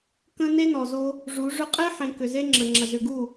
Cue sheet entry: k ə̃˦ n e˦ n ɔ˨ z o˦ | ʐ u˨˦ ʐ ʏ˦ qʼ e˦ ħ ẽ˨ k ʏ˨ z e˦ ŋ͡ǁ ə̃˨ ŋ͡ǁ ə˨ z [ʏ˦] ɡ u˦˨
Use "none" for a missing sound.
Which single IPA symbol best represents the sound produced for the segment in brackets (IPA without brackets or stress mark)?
ʏ˨